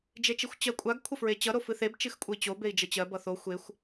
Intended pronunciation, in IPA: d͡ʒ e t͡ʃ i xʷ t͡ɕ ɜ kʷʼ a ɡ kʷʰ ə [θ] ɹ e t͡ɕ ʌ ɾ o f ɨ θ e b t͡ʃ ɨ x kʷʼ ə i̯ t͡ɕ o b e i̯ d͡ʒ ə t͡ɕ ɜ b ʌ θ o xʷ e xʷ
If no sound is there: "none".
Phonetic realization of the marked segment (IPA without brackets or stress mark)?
f